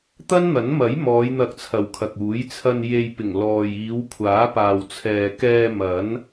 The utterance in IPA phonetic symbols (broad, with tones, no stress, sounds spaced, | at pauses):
t̪ ɐ˥ n n̪ ɐ˨˥ n m ɐ˨˥ j m ɔː˨˧ j n̪ ɐ˧ k̚ t͡sʰ ɐ˨ w kʰ ɐ˨ k̚ uː˨˥ j t͡sʰ ɐ˧ n j e˧ j p ɪ˨˩ ŋ l ɔː˨ j iː˨˧ w kʷʰ aː˨˥ p aː˨ w t͡sʰ ɛː˨ k ɛː˧ m ɐ˨˥ n